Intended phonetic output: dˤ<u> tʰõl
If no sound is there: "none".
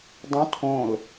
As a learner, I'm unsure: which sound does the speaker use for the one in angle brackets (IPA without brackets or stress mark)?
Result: ũ